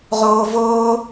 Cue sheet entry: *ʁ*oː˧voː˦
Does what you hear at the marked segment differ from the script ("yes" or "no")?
no